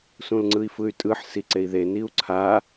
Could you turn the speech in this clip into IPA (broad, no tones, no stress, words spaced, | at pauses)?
sũlŋ͡ǀɯi̯fɯy̯tʼɯħ siǀei̯ðe niu̯ǀʰa